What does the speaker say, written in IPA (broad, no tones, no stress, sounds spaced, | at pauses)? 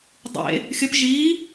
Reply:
dˤ ḛ | xʲ ə p ʒ iː